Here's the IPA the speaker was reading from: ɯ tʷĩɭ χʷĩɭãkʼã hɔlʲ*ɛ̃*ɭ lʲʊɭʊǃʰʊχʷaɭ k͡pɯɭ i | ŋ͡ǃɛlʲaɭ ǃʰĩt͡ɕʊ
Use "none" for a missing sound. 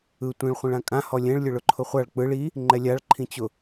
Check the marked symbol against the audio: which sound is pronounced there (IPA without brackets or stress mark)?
ɛ̃